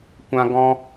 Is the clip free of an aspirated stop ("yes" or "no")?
yes